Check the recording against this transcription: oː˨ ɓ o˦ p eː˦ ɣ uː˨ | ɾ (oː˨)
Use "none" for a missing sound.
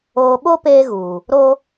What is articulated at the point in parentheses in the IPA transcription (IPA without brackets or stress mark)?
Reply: oː˦